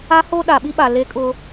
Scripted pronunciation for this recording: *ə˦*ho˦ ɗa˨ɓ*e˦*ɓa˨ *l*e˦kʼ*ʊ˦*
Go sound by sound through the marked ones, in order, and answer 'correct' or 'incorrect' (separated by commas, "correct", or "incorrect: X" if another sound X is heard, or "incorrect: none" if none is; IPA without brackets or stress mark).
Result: incorrect: a˦, incorrect: i˦, correct, correct